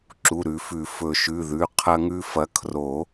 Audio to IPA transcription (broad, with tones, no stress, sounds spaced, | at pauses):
ǁ u˩˧˩ ɾ ʉ˨˩˦ f ʉ˨˩˦ f ɵ˨˩˦ ʃ ʉ˩˧˩ ð ʉ˩˧˩ qʰ ɐ˦ ŋ ʉ˦ f ɐ˨˦ kʰ r o˨˩˦